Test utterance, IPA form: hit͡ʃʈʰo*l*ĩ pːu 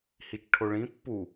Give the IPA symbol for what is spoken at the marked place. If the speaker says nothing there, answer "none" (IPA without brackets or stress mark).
ɭ